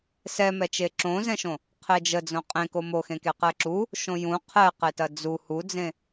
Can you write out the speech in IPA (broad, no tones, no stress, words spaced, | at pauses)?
sɛmɛt͡ʃe ǁõzɛ̃ʃõ | qʰed͡ʒəd͡zõ qʼẽko moxẽ keqɛǁu | ʃõjũ qʰɛqetɐ d͡zu hud͡zẽ